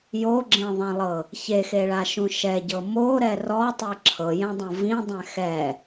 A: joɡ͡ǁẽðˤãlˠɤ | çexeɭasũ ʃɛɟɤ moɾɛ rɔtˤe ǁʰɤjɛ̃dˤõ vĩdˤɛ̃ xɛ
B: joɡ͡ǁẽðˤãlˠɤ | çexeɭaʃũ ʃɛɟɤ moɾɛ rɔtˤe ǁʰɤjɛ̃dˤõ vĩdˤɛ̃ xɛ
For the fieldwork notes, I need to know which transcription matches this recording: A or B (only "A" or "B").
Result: B